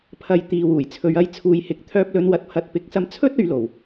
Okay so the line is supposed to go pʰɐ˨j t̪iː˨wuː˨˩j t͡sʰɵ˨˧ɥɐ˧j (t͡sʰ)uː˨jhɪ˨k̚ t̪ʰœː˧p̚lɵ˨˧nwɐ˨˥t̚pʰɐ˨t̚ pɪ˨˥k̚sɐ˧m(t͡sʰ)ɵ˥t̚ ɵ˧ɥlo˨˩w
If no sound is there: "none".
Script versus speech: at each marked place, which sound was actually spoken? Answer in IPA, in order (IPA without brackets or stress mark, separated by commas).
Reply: t͡sʰ, t͡sʰ